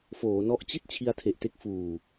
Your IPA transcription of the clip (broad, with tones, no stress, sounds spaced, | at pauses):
f oː˩˦ n ɔ˦˥ ʔ t͡ɕ i˥˩ t̚ t͡ɕʰ i˧ a̯ tʰ e˨˩ ʔ t e˥˩ k̚ f uː˨˩